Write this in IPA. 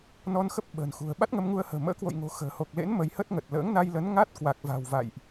n ɔ˧ n x ə˦˥ p̚ ɓ ə̤ː˨˩ n x ṳ˨˩ ə̯ ɓ a˦˥ t̚ ŋ ə˧ m ŋ u˧ ə̯ h ə̤ː˨˩ m ə̰ː˧˥ k w o̰˧˨ j ŋ o̤˨˩ x ə̤ː˨˩ h o˨˩ k̚ l ḛ˧˥ n m ə˨˦ j h ə˦˥ t̚ ŋ ə˨˩ t̚ l ə̰ː˧˥ ŋ n a˧ j l ə˨˦ n ŋ a˦˥ t̚ k w a˨˩ k̚ v a̤˨˩ w v a̰˧˨ j ʔ

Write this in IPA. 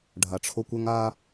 ɖʱ a˨ ʈ͡ʂʰ o˦ kʷ ʏ˦ ŋ a˦

